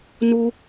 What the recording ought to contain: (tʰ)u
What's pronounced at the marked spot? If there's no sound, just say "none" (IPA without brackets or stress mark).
n